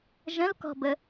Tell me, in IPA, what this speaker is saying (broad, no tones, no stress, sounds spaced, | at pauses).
ʒ ə̃ l k ɔ̤ b ə